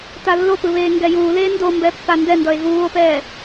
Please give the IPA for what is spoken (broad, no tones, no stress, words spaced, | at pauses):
talːopɯ βeːŋɡɛjuːleː ndombɛ pːandɛndʌe̯ ɣuːo̯pɛː